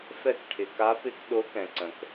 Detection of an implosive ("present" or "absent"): present